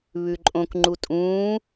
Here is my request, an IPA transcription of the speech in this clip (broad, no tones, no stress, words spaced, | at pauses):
βʉǃʼõk ŋ͡ǃutʼũː